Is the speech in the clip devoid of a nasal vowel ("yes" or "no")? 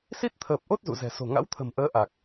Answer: yes